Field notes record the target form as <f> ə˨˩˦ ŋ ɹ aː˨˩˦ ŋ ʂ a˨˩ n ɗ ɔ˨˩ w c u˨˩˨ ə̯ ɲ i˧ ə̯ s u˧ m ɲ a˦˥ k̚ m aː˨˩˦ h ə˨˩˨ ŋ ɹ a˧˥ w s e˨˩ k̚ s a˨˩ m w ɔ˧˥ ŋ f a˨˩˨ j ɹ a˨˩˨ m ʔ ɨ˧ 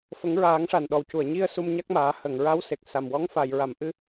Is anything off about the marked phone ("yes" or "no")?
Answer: no